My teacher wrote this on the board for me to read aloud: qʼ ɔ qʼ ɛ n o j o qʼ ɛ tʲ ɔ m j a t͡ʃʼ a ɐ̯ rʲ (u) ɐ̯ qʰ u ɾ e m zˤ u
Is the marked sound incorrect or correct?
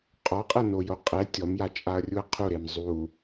correct